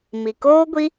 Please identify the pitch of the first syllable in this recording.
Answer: low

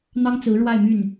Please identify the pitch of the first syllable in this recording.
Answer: high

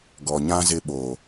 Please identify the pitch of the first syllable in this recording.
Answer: low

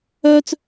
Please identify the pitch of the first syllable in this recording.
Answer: high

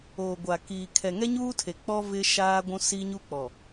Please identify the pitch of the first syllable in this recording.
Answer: low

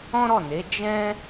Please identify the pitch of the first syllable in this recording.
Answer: high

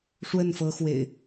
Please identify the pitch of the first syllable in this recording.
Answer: falling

